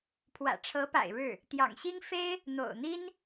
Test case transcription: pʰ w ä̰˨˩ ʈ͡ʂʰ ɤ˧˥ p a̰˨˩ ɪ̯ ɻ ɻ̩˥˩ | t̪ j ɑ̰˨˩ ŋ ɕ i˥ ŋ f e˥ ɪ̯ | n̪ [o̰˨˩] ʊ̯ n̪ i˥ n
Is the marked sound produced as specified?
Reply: yes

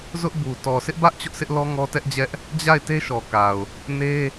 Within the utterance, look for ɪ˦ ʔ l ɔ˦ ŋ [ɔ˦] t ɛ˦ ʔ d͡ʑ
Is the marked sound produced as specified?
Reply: yes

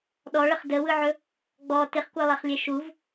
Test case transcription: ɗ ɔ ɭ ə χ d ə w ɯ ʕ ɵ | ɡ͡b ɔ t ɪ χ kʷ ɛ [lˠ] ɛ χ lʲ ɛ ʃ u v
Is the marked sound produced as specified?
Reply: yes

